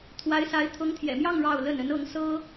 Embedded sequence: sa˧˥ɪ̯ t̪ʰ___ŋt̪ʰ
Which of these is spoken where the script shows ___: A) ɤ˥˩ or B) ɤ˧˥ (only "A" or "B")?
B